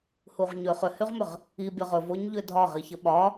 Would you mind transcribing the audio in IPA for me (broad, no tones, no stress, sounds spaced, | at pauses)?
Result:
h u ʁ ɲ ʏ χ ʏ h y ʁ m ʏ ʁ | i bʲ ɒ ʁ ɵ v o ɲ ʎ ʏ dʱ ɒ ʁ i ç ə ɓ ɒ